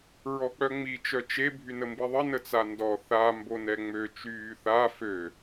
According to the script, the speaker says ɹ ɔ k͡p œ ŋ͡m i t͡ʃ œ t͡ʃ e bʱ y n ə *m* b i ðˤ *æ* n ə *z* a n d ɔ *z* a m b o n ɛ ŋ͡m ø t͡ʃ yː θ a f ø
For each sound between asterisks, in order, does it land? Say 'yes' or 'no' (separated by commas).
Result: yes, no, no, no